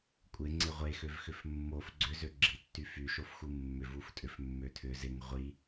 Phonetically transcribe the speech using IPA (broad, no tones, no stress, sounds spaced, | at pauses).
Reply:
kʷʼ ɪ ŋ͡ǀ ɪ ʁʷ e x ø v x ʏ f mː o f ɡ͡ǀ ʏ z ø ɡ͡ǁ i tː y f y ʃ o f x u mː ʏ v u f tʼ ʏ f mː ø tʰ ʏ z ɪ ŋ ʁʷ i